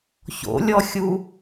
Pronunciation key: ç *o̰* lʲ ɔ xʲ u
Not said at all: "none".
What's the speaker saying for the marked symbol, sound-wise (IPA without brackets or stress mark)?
o̰